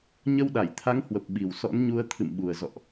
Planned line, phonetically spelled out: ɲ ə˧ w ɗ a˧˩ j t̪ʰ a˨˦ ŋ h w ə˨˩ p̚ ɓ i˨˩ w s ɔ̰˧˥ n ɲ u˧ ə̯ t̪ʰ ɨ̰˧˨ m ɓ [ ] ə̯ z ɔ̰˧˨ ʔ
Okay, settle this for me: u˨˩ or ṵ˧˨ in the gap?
u˨˩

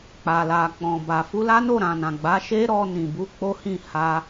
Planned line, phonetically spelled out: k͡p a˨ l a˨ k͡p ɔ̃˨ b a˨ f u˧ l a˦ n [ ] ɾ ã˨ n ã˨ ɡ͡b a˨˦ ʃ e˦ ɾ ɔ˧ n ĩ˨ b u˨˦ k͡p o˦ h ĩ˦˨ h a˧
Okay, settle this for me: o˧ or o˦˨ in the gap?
o˦˨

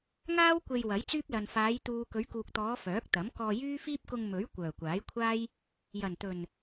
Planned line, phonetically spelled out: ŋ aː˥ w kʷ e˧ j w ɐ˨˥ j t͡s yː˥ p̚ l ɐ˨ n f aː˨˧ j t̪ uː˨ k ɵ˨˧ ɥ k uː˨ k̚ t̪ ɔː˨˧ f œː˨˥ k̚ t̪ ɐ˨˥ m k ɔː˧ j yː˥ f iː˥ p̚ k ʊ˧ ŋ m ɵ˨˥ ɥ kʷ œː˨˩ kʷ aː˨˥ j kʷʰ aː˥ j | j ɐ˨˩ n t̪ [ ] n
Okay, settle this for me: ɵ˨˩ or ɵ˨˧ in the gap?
ɵ˨˩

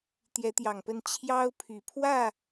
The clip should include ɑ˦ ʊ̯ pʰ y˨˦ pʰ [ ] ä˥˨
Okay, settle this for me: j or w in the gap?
w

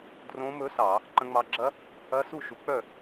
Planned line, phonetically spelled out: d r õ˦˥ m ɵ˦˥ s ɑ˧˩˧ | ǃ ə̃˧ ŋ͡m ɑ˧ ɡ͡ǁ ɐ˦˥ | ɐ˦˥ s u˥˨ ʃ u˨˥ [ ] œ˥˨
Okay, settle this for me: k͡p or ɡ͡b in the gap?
k͡p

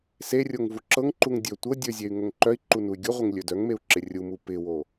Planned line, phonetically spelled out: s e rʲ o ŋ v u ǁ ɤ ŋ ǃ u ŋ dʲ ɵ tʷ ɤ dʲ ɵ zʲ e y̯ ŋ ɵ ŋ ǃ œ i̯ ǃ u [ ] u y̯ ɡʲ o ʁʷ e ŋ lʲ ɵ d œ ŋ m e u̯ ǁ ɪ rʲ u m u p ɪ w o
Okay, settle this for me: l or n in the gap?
n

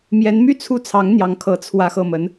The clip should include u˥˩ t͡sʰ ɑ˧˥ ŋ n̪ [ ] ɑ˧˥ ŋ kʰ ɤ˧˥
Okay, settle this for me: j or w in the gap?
j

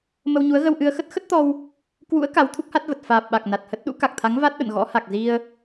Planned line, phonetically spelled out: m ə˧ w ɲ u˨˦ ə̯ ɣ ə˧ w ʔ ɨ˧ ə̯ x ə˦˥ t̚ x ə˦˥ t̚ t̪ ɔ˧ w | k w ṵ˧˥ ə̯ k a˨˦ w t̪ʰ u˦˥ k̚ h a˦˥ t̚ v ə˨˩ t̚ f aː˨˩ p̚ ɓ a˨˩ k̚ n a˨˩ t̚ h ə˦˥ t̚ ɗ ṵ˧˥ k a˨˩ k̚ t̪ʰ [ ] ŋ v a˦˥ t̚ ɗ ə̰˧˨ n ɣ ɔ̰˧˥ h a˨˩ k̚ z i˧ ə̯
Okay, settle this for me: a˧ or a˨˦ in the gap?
a˨˦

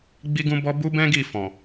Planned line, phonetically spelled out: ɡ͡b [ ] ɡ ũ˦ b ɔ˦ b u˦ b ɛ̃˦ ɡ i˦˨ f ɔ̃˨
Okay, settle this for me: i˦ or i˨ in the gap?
i˦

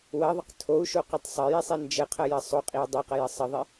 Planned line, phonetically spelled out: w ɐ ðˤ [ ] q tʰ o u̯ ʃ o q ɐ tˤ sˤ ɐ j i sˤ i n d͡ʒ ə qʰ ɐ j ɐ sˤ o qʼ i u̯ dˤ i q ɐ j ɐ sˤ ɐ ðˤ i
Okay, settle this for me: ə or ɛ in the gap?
ə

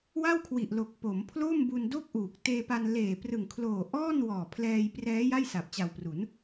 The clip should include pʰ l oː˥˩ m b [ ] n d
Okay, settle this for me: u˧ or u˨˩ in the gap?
u˧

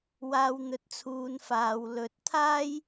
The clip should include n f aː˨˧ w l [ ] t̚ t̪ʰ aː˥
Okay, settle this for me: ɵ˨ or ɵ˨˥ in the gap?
ɵ˨˥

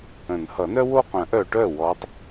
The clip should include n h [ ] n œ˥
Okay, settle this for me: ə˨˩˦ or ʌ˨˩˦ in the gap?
ʌ˨˩˦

